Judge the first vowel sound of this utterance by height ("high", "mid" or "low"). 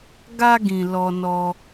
low